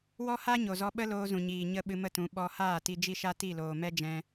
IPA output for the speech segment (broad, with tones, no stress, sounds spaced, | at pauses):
w ɔ˦ h a˦ ɲ o˨ z ɔ˧ ɓ ə˦ l oː˧ z ũ˨ ɲ iː˨ ɲ ə˧ ɓ ɨ˧ m ə˦˨ t ũ˨˦ ɓ ɔ˧ h aː˦˨ t i˧ d͡ʒ i˦ ʃ a˦ t i˦˨ l oː˨ m ɛ˦ d͡ʒ ɛ̃˧